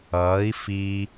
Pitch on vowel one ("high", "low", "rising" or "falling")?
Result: rising